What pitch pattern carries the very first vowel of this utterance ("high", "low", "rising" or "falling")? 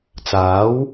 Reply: rising